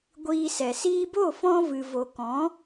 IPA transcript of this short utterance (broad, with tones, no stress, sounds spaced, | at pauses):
ɡʷ iː˧ s ɛ˨ s iː˧ b o˦˨ f ɔ̃˧ v ɨ˨ v o˨ k ɔ̃˨˦